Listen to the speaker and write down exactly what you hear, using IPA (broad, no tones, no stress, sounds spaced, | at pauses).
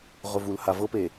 ʁ ʊ v u l h a v ɤ p e